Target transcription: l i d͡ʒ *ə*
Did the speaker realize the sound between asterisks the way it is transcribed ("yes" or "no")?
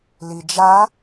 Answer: no